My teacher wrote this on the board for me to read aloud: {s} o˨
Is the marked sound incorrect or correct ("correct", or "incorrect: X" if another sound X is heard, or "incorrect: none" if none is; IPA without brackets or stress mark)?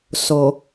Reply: correct